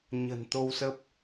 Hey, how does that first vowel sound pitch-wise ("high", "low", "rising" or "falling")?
low